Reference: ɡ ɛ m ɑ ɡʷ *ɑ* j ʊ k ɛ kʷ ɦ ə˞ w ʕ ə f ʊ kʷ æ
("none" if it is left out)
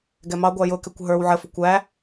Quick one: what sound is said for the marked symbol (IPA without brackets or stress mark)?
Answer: ɑ